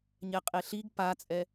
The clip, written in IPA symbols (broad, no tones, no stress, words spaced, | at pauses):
ɲɛqʼeɬiɡ pat͡sʼɛ